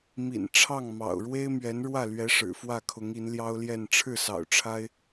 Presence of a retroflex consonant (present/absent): present